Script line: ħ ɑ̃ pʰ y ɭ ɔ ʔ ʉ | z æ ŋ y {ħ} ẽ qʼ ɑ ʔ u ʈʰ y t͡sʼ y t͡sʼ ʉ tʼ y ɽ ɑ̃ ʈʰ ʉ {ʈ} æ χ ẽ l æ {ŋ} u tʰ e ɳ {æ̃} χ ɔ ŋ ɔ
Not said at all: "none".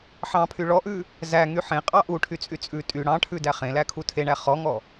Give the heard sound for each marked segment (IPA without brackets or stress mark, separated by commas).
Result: ħ, d, kʰ, æ